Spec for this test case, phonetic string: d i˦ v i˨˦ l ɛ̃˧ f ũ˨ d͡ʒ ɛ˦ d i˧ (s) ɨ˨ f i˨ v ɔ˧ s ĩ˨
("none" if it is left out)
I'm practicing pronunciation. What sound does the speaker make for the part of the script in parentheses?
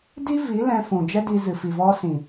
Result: z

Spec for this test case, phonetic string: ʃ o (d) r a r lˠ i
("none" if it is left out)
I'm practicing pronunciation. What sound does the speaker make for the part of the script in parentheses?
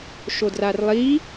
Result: d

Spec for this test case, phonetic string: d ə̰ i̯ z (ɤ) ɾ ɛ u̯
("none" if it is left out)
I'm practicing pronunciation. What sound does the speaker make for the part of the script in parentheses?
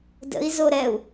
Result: o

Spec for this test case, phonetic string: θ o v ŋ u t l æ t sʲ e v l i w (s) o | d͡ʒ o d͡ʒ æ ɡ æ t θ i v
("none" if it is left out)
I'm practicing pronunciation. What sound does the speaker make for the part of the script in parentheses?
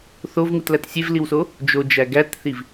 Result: s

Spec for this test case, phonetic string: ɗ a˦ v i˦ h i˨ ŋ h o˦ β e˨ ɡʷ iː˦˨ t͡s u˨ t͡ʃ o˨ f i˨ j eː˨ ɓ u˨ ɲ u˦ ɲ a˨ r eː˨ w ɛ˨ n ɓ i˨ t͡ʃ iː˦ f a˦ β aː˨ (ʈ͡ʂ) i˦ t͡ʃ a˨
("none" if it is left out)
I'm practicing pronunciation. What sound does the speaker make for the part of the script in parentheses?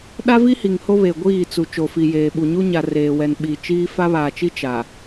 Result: t͡ʃ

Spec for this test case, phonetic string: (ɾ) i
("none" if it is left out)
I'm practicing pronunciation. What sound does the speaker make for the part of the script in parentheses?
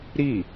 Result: ɾ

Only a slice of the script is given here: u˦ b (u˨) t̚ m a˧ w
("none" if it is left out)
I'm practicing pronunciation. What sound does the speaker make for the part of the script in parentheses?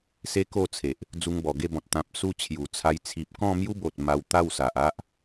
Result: o˨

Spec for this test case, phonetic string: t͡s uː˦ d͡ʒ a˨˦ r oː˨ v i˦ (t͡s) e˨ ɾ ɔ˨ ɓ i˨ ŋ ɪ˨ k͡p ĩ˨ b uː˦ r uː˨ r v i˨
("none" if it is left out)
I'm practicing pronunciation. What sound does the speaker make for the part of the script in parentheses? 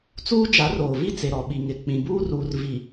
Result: t͡s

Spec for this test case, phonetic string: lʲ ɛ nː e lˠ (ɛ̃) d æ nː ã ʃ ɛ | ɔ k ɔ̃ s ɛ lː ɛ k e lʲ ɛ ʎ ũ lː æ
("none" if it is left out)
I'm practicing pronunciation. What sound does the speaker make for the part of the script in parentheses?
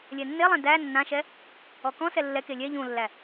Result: ɛ̃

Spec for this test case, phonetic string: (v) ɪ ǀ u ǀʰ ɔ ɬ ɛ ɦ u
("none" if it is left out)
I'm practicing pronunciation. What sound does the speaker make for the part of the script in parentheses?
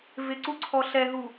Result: v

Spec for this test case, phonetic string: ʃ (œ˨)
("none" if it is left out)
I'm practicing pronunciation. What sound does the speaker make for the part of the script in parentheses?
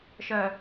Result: œ˨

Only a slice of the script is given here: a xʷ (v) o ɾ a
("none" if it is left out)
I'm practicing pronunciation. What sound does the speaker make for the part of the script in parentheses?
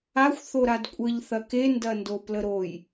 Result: θ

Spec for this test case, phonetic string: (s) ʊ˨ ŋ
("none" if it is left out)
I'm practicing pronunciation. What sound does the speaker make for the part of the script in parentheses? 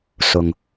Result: s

